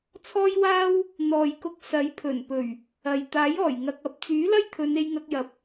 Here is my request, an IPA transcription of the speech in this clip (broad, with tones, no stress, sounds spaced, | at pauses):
t͡sʰ ɔː˥ j w aː˥ w | n̪ ɔː˨ j k ʊ˧ k̚ s ɐ˨˥ j pʰ ɵ˨˩ n p ɵ˨˩ ɥ | ɐ˨ j t̪ aː˨˥ j ɔː˨˩ j ŋ ɐ˧ k̚ ɐ˨˥ p̚ t͡s yː˨˥ l ɐ˥ j t̪ʰ ɵ˨˧ n e˧ j ŋ ɐ˧ k̚ j ɐ˨˥ p̚